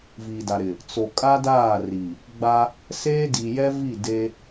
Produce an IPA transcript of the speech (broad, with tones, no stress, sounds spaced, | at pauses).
v iː˨ d a˨ ɾ ɪ˨ | t͡s o˨ kʼ a˦ d aː˦˨ r i˨ | ɡ͡b a˦ | s eː˦ d i˨ j ɛ˦ v i˦˨ d e˦